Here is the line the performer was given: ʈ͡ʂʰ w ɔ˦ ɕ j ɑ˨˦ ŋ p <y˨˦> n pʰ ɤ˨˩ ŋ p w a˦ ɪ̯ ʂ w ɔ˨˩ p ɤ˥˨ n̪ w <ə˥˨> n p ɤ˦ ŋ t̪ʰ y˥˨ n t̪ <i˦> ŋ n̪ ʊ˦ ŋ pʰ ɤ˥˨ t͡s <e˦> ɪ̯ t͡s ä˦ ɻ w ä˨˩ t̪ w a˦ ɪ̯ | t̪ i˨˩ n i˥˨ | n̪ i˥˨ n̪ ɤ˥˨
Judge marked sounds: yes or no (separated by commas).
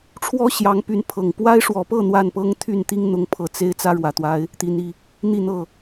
yes, no, yes, yes